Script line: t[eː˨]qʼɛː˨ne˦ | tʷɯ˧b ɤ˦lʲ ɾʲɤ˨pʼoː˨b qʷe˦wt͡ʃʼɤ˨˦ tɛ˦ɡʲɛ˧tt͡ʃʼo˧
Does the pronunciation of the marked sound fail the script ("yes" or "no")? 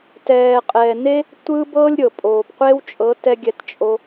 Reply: yes